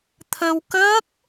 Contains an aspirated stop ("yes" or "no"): yes